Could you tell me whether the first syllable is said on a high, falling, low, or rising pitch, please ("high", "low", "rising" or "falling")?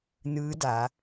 rising